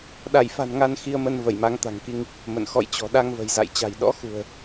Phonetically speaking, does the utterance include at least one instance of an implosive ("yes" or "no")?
yes